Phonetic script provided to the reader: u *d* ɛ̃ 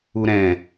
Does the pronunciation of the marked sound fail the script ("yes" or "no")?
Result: yes